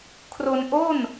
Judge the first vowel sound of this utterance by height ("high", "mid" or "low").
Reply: mid